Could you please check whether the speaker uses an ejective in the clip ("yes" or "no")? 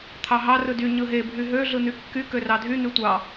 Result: no